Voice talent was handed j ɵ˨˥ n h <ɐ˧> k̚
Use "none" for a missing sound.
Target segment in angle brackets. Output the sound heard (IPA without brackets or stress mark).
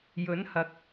ɐ˨˥